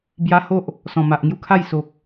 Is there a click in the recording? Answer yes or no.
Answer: no